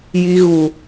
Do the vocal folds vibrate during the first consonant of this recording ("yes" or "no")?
yes